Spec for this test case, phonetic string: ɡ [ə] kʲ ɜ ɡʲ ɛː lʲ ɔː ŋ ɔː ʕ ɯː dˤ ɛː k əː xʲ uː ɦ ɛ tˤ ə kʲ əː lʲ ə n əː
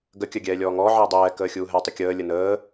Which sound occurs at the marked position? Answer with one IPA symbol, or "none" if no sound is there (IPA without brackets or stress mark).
ə